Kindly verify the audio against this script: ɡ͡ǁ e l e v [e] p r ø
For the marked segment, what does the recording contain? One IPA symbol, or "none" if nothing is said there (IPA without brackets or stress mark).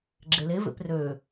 ḛ